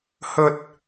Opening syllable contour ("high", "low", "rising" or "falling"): high